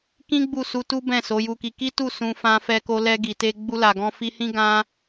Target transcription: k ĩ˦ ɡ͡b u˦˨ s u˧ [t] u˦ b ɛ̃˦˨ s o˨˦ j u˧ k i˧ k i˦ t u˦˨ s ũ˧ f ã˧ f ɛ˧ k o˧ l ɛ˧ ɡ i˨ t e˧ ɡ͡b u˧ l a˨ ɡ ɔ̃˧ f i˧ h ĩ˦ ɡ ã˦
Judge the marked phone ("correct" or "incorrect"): correct